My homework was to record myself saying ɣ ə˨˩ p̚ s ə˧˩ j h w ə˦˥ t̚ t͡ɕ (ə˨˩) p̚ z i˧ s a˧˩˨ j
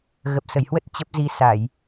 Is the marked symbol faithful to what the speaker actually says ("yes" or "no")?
no